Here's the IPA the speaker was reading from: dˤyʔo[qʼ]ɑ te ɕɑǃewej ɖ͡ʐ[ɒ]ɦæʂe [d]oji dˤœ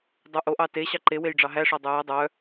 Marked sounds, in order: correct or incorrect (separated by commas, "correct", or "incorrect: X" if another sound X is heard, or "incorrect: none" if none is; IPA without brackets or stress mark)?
incorrect: ʔ, incorrect: ɑ, incorrect: dˤ